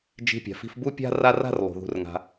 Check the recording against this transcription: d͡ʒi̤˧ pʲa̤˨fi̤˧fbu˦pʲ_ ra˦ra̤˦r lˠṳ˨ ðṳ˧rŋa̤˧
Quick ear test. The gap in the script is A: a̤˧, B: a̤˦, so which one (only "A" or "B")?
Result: B